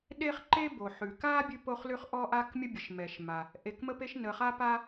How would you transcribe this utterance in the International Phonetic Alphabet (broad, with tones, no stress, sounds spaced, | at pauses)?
ɗ e˥ χ ǃ e˥ b o˩ ħ ʉ˩ k a˥ bʲ ʉ˥ p o˥ χ l ʉ˥ χ ʔ ɔ˥ ʔ a˥ k mʲ ə˥ bʲ ə˩ ʃ m ɛ˩ ʃ m a˩ | ʔ e˩ k m ə˥ p e˥ ʃ n ə˩ χ a˥ p a˥